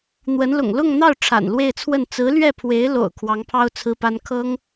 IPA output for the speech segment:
n̪wə˧˥nlʊ̰˨˩ŋ lʊ˥˧ŋn̪ɑ˥˩ʊ̯ ʈ͡ʂʰa̰˨˩nlwe˥˧ɪ̯t͡sʰwə˥˩n t͡sɹ̩˧˥lɥɛ˥˩pʰwe˧˥ɪ̯lo̰˨˩ʊ̯ kʰwɑ˧˥ŋpʰɑ˥ʊ̯t͡sʰɹ̩˥pa˥n kʰɤ˥ŋ

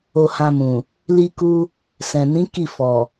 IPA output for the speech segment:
o˧hã˧mũ˨ | li˧ku˧ | sɛ̃˨nĩ˨˦ ki˦˨fɔ˨

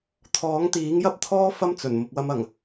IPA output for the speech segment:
t̪ʰɔː˨˥ŋt̪iː˨˥ŋjɐ˥p̚t̪ʰɔː˥ fɐ˥mt͡sɵ˨˩n mʊ˨k̚wɐ˧mɐ˨˩ŋ

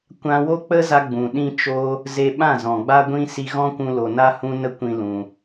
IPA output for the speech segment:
kʷã˦ wo˦k͡pə˦za˧ ɡ͡bũ˨ɗĩ˦ t͡ʃo˦ | ze˧ɓã˦˨ zɔ̃˨ɡ͡ba˦ɡʷĩ˦ si˧ɣɔ̃˦kʷũ˧ lo˧ na˦hũ˦nə˦ kʷĩ˦lũ˧

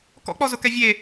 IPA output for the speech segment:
kɔ̰k͡pɔzʊkɛ vʲe

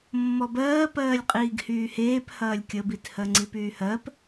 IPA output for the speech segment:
mːɔbɜːpɜːlʲ qʼiːɡhyːheːp hɐːlʲkʲəbithɜ ŋ͡ǀipyːhɜp

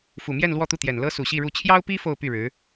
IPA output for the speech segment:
fu˨˩mjɛ˥˧n lwɔ˥˧t̪u˥˩t̪jɛ˨˩n lɤ˥su˨˩ɕi˥˧ɻu˥˩ t͡ɕʰjɑ˥ʊ̯pi˥ fo˥˧ʊ̯py˥˩ɻɻ̩˧˥

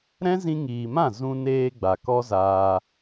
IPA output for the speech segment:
ɾɛ̃˦zĩ˧ŋiː˨mã˦˨ zũ˧ neː˧ ɡ͡ba˨kɔ˦zaː˧

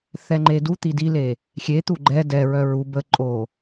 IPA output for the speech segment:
θɛŋ͡ǃedut̪i dile | xʲet̪u ɡ͡ǃɛ dɛɹœ ɹu bə ǃʼo

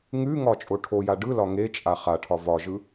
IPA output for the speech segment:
ŋʉŋɒ t͡ʃʼoʈʰoja ɖɯlɒ ŋet͡ʃʼa χaʈʰɒ vɒʒɯ

